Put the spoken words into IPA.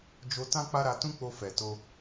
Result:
d͡ʒ o˧ t ã˦ k͡p a˦ ɾ a˧ t ũ˦ k͡p o˧ f ɛ˨ t o˧

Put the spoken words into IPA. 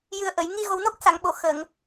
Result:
j ɨ˨˩ ə̯ ʔ ə˨˩˨ j ŋ i˧ ɣ o˨˩ w n o˦˥ k̚ s a˨˩˨ ŋ ɓ o˨˩˨ x ə˨˩˨ ŋ

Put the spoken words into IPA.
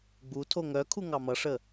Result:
ɡ͡b u tʰ o ŋ œ kʰ u ŋ ɑ m ʌ ʂ ə

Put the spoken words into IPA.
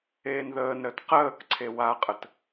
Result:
eː n ð əː n ɾ əː t q əː k ǀʰ e w a qʼ ə t

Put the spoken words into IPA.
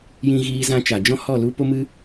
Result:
j ĩ˧ ɣ iː˧ z ã˧ t͡ʃ a˨ d͡ʒ ɔ̃˦ h ɔ˦˨ l u˦ p o˦ m ɨ˦

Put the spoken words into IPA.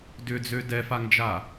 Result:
d ʏ d͡z ø d ɛ f a ŋ d͡ʒ a

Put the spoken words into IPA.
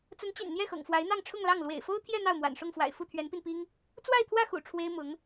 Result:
t͡s ə˧˥ n t͡ɕ y̰˨˩ n n̪ j ɛ˥˩ x ɤ̰˨˩ ŋ f w a˧˥ ɪ̯ n̪ ɑ˥˧ ŋ ʈ͡ʂʰ ʊ˥˧ ŋ l ɑ˥˩ ŋ l w ḛ˨˩ ɪ̯ f o˥ ʊ̯ t̪ʰ j ɛ˥˧ n̪ ɑ˥˩ ʊ̯ m w a̰˨˩ n ʂ ʊ˥˩ ŋ f w a̰˨˩ ɪ̯ f u˥˩ t̪ʰ ɥ ɛ˧˥ n p i˧ n p i˥ ŋ | t͡s w a˥˧ ɪ̯ t̪ʰ w ä˥˩ x ṵ˨˩ ʈ͡ʂʰ w e˥ ɪ̯ m ʊ˧˥ ŋ

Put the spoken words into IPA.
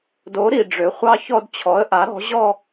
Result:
d o˩˥ ɾ i˩ ɖ͡ʐ ø˩˥ χʷ ɑ˥˧ ç ɔ˥˧ d t͡ɕʰ ɔ˩˥ ə̯ ʔ a˩˥ ɾ ɔ̤˩˥ ʑ ɔ˥˧

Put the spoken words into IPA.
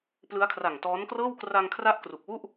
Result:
p l ɯ˦˥ a̯ kʰ r a˨˩ ŋ t ɔː˦˥ n k r ɤː˥˩ w k r a˧ ŋ kʰ r a˦˥ ʔ k r u˨˩ k̚ w u˥˩ ʔ

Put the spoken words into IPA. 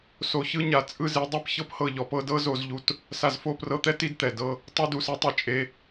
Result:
s o˨ ç ɯ˧ ɲ a˨ t͡sʼ ɯ˦ z i˨˦ dˤ ɛ˦ p ç ɤ˦ p h ɤ˦˨ ʎ ɔ˨˦ p ɤ˨˦ d ɤ˦ z o˧ z ʎ u˧ t | s a˨ z f o˦˨ p r ɤ˧ t̪ ɛ˦ t i˦ d t̪ ɛ˨ d ɤ˦ | tˤ ɯ˧ d u˨ s ɛ˧ tˤ e˨ t͡ʃʼ e˧

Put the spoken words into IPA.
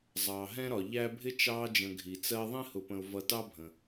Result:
zˤ ɑː˩ ɦ ɛ̃˦ ɾ ɒ˩ ʎ æ˦ bʱ ɪ˥ t͡ʃ ɑː˦ d͡ʒ ə̃˨ ɡʱ i˩ t͡s ɜ˦ ðˤ ĩ˥ h ʊ˨ p ə̃˨ ʊ̯ v ʌ˨ t ɑ˦ bʱ ə̃˩

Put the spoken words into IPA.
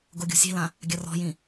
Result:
ɡ o ɡʲ o̤ sʲ e̤ l ã | ɡʲ ɐ r ɔ̤ j ĩ

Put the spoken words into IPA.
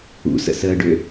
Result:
ṵ s ə̰ s əː ɖ ø

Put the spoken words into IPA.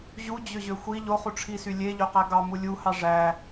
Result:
ʑ u d͡ʑ ø ʑ ø xʷ i ʎ o χ u ʈ͡ʂʰ i s y lʲ e ʎ ø q æ ɡ ɑ m u lʲ u h ɑ ʐ æ

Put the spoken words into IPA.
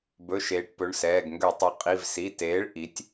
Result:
b ɵ˩˧˩ ʃ eː˩˧ ʈ p ɵ˩˧˩ ɳ s ɛː˩˧˩ ɡ ŋ ɡ ø˧˩˧ tˤ ø˩˥ qʼ i˩˧˩ v s i˩˧˩ t eː˩˥ ɭ ʔ i˩˥ tʲ

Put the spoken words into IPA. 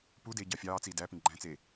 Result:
p u d eː ɟ ɑ fʲ ɑː t͡s iː d æ p ĩ ɡ͡ǃ æ̃ t͡s e

